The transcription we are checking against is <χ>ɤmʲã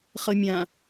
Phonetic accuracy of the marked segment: correct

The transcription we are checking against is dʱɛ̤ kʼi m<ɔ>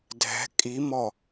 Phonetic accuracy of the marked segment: correct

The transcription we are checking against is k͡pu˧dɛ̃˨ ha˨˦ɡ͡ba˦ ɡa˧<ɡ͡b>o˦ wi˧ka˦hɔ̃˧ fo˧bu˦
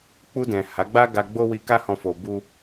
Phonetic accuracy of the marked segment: correct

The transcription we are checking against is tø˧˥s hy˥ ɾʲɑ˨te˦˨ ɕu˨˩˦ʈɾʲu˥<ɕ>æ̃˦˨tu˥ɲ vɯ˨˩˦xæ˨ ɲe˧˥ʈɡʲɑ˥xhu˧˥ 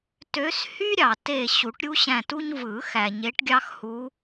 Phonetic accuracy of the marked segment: correct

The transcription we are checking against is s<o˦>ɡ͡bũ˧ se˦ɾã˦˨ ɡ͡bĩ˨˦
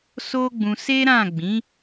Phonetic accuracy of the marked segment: correct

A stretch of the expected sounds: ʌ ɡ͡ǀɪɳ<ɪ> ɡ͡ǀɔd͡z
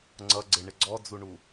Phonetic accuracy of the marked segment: correct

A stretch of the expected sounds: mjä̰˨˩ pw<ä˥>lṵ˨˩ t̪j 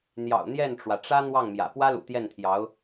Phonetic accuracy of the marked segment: correct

